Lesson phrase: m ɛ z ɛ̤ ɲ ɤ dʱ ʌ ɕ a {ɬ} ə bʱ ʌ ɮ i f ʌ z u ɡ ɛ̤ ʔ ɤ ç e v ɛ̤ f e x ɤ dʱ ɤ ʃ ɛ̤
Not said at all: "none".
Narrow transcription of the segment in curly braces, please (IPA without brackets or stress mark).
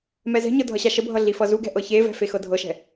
ʃ